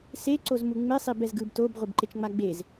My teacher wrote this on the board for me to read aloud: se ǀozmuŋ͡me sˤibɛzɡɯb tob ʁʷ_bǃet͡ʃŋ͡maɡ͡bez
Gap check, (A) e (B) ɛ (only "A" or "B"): A